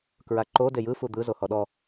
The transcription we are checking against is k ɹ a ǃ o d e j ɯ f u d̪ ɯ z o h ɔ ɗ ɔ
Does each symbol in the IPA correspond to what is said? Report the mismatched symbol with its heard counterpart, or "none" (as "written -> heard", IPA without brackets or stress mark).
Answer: none